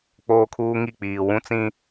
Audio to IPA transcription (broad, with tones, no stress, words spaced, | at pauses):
k͡poː˦kʰuː˦ŋi˦˨k͡piː˨ wũ˦t͡sĩ˦